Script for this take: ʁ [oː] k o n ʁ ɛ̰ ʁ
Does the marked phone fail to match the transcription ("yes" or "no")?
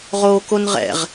no